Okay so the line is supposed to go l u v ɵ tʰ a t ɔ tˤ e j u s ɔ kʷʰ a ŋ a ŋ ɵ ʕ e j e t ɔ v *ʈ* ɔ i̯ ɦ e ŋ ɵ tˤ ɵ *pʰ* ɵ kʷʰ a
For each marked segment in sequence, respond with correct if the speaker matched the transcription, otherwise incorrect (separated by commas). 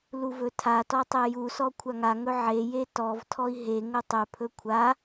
incorrect, correct